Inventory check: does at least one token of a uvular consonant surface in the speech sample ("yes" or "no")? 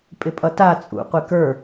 yes